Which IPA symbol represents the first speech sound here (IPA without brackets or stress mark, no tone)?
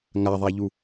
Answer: ŋ